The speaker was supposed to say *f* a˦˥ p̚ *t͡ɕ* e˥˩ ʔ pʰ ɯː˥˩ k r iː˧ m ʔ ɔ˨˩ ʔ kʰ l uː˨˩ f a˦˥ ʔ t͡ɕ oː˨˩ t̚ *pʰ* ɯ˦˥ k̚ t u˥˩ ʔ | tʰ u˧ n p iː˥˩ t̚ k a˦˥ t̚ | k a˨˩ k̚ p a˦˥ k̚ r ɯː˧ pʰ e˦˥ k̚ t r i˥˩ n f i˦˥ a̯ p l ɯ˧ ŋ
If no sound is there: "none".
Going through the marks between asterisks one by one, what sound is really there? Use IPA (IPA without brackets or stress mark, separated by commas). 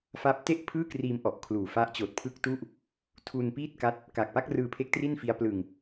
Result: f, t, pʰ